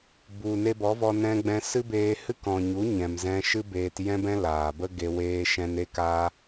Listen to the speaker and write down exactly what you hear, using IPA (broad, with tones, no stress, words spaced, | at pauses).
bu˨ ne˧bɔ˨˦vɔ˧ nɛ̃˧ɡ͡bɛ̃˧ sɨ˦beː˧ hɨ˦kɔ̃˨ɲu˨˦ ɲɛ̃˨mzɛ̃˧ ʃɨ˦ beː˧t jɛ̃˦bɛ̃˦ laː˨bə˦ɡe˧ weː˦ʃɛ̃˦n e˦kaː˦